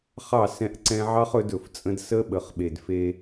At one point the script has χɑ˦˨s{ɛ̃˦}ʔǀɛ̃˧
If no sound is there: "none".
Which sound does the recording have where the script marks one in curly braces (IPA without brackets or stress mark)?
ɛ̃˧